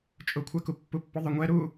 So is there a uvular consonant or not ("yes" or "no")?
no